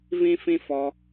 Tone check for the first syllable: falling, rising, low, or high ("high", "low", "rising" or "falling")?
high